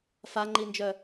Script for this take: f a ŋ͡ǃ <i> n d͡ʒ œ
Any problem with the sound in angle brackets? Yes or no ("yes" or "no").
no